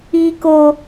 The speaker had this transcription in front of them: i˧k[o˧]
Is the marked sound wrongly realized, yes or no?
no